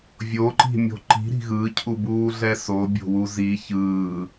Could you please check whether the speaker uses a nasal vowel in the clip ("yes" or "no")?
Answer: no